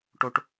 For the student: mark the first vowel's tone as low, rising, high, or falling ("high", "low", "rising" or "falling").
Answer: high